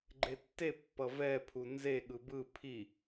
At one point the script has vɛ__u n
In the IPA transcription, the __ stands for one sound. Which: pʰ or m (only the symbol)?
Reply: pʰ